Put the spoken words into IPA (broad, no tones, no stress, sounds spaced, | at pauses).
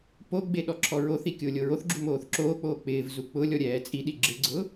p o ɡ͡b e ɗ ɔ ǁʰ ɔ ɹ o θ i kʲ ʊː lʲ o ɹ o θ ɡ͡ǁ u m oː θ ǁ oː k͡p oː k͡p ɪː v z u k͡p ʊ lʲ ɔ ɾʲ ɛː t͡sʼ i ɗ i ɡ͡ǁ ɪ ɡ͡ǀ ʊ